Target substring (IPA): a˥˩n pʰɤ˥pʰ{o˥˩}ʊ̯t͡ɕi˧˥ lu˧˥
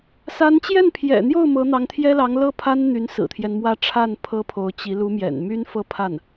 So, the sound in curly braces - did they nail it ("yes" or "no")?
no